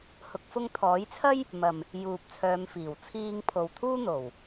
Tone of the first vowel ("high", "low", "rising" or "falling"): rising